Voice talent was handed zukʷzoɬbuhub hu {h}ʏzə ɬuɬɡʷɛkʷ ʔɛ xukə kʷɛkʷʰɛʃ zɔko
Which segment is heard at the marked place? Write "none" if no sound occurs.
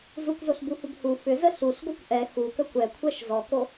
f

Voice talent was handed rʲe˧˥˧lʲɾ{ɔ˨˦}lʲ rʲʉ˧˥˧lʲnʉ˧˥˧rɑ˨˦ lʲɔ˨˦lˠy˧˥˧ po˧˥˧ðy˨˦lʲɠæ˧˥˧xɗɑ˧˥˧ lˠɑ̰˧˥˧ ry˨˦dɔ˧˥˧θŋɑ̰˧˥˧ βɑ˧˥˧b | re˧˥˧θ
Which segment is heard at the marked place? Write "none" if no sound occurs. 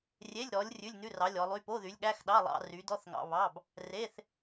ɔ˨˦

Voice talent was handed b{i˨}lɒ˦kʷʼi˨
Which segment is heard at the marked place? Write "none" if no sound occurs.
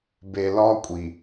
e˨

